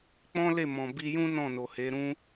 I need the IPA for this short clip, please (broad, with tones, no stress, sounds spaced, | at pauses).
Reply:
k͡p ɔ̃˦ l e˦˨ m ɔ̃˨ b i˧ j ũ˦ n ɔ̃˦˨ n o˨ h e˨˦ ɾ ũ˦